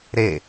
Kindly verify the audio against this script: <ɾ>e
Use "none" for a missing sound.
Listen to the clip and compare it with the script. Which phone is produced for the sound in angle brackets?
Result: ɾ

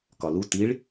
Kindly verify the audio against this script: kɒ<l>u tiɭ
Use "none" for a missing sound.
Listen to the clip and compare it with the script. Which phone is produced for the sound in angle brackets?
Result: l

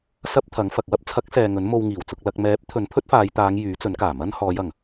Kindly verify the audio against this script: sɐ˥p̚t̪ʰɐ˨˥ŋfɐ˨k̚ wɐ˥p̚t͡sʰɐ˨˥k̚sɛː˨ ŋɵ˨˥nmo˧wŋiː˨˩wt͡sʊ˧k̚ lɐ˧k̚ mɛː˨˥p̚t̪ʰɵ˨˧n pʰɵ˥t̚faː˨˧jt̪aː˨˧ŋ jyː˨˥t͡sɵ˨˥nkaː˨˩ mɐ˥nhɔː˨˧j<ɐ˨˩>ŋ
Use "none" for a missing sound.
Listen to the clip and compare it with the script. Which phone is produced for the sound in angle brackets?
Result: ɐ˨˩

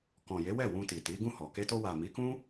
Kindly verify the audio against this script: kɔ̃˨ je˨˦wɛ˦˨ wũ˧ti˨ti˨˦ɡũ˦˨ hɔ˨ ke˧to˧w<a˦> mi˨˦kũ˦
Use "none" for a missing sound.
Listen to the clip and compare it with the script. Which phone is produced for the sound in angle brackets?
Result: a˨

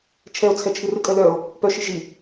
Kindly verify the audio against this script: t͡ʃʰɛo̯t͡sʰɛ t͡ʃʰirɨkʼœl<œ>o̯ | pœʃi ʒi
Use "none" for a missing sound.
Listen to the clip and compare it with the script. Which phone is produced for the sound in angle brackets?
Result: œ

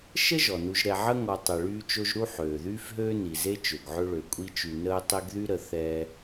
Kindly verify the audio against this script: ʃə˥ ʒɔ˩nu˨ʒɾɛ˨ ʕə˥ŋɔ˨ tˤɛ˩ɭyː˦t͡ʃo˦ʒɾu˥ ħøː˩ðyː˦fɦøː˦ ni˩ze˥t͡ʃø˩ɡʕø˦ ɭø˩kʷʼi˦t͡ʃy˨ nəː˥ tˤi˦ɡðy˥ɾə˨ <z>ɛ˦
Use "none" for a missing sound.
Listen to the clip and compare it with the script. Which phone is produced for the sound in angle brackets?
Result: θ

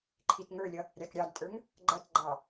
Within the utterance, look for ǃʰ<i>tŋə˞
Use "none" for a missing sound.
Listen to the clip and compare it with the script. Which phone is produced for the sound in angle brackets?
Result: i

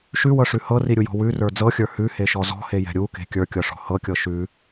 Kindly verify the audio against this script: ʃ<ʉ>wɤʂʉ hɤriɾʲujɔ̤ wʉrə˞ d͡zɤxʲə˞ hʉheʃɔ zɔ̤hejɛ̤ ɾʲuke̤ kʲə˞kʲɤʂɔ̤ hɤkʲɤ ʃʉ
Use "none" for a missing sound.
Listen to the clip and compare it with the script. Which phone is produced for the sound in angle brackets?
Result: ʉ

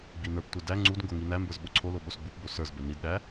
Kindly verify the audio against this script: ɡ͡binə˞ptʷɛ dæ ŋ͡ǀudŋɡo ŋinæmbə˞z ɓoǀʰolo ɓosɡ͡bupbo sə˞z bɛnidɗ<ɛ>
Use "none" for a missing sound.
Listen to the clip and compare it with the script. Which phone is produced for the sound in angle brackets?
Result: æ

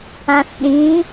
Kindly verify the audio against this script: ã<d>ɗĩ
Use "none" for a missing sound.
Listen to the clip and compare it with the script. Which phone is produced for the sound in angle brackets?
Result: θ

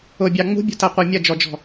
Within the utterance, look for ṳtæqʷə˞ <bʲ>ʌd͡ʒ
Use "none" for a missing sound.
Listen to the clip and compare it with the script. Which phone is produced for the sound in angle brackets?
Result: mʲ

